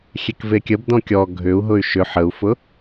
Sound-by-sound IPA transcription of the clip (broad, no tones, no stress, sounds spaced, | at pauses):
xʲ e k v e kʲ ə b d ɔ̃ kʲ ɔ ɡʱ ʏ u̯ ɦ ʊ y̯ ʃ ʏ ħ ə u̯ f ʊ